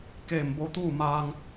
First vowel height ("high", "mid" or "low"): mid